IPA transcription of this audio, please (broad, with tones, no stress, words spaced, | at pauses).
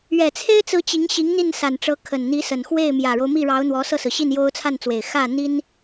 ɥɛ˨˩t͡sʰe˥ɪ̯t͡sɹ̩˧˥ t͡ɕi˧˥ŋɕi˧˥ŋ n̪i˥˩nsa˨˩nʈ͡ʂɤ˧˥ kʰə˨˩nn̪i˧˥ sə˨˩nxwe˥˩ɪ̯ mjä˨˩ɻo˦ʊ̯ mi˥˩ɻɑ˧˥ʊ̯n̪wɔ˧˥ sɤ˥˩sɹ̩˩ɕi˥˩n jo˥ʊ̯ t͡sʰa˥˩nt͡swe˨˩ɪ̯ xä˥˩n̪i˥n